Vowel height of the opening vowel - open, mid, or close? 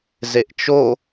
mid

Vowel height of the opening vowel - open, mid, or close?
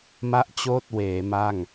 open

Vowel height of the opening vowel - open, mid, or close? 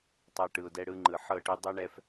open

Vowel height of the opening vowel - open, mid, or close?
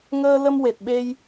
mid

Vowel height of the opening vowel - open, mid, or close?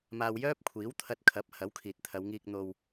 open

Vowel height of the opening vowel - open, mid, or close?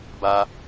open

